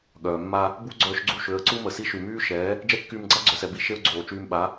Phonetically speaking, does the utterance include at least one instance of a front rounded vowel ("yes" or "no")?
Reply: yes